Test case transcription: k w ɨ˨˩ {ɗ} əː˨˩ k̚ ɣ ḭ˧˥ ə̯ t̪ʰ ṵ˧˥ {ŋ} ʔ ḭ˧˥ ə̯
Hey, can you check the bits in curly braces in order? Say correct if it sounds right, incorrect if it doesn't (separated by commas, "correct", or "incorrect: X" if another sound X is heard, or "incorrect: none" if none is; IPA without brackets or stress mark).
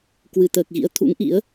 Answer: incorrect: t̪, correct